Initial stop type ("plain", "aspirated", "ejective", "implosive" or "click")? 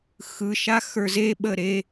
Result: implosive